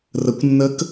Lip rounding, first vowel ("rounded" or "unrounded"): unrounded